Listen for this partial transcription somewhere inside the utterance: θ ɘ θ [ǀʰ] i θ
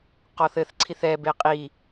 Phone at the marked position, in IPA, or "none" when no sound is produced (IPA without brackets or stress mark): ǀʰ